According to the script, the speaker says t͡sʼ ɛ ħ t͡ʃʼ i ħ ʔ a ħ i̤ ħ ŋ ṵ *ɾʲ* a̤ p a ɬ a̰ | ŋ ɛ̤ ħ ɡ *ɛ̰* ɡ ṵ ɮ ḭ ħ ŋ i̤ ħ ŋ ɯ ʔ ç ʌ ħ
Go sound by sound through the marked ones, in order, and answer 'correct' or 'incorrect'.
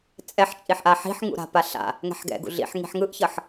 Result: incorrect: ɾ, correct

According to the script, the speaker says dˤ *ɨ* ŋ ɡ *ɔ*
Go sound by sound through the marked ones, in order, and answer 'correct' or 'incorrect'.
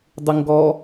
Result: correct, correct

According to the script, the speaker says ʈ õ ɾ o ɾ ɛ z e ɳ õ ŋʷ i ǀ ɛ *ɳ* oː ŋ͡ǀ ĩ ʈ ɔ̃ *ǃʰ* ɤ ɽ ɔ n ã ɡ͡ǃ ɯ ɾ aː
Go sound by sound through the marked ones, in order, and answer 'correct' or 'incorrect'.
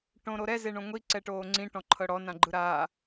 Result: incorrect: ʈ, correct

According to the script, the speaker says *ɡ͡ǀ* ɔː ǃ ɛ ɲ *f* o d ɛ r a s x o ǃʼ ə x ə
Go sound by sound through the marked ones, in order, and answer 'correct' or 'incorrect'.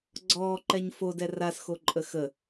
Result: correct, correct

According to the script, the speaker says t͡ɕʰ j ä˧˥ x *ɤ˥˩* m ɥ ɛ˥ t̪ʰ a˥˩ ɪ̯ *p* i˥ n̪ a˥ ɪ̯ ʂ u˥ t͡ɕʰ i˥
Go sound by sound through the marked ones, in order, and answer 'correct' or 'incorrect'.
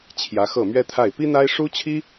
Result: correct, correct

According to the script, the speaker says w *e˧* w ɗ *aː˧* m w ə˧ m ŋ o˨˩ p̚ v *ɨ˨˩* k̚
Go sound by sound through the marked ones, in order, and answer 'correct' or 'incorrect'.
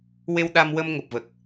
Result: correct, incorrect: a˧, incorrect: ə˨˩

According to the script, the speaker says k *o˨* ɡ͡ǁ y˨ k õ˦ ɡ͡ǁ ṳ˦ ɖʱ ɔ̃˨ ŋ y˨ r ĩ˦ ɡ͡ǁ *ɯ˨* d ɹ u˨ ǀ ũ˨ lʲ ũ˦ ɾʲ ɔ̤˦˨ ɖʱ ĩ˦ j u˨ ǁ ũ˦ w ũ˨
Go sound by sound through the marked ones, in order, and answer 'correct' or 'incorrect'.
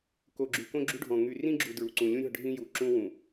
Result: correct, incorrect: u˨

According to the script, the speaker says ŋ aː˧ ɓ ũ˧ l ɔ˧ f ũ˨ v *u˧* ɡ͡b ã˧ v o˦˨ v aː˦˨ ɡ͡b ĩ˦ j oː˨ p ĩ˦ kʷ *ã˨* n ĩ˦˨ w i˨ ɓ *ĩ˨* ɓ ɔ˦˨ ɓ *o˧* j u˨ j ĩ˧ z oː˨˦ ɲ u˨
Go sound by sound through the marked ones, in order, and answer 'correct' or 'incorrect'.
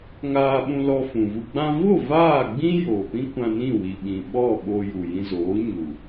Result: correct, incorrect: ã˧, correct, correct

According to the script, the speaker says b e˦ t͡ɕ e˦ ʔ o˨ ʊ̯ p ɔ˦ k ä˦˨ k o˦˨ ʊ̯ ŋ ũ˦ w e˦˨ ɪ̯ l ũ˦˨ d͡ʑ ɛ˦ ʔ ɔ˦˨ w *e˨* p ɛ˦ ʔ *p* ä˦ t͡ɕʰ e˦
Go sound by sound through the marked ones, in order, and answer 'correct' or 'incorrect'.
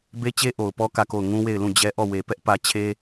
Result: correct, correct

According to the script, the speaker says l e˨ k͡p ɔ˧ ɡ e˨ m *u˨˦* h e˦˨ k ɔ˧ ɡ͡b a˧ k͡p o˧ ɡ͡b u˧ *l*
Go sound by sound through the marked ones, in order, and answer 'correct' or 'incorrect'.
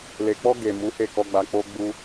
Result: correct, incorrect: none

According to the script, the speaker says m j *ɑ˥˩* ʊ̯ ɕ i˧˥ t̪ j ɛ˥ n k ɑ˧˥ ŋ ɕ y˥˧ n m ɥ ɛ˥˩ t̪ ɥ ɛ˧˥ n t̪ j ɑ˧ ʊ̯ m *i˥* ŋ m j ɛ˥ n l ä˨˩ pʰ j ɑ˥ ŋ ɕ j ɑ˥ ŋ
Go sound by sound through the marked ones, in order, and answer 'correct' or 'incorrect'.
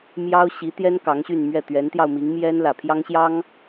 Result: incorrect: ɑ˥, incorrect: i˧˥

